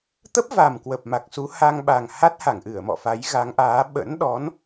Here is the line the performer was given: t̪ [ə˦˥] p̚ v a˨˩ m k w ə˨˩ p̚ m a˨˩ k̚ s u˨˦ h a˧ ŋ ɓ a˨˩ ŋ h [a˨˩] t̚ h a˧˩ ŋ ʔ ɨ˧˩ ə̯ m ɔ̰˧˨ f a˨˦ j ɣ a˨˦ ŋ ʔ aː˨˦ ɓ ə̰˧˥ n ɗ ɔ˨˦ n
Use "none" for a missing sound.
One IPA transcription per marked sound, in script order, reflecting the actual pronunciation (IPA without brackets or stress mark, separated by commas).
ə˦˥, a˦˥